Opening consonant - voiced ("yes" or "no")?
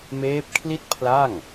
yes